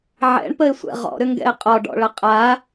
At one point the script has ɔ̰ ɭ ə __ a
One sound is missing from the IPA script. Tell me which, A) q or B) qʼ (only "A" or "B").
B